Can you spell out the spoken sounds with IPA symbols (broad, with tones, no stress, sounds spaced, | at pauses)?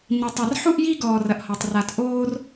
ɲ i˧ tˤ a˧ r ħ u˦ ʔ j i˦ ɡ ɔː˧ r ɐ˧ ʔ h ɔ˧ tˤ r a˧ t ʔ oː˦ r